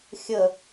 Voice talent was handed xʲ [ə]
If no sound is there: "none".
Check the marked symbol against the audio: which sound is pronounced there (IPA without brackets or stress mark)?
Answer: ə